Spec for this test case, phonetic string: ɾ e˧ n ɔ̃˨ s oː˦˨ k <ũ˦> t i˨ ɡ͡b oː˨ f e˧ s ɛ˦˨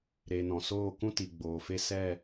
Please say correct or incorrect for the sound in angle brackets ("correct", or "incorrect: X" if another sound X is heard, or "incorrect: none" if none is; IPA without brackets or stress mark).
correct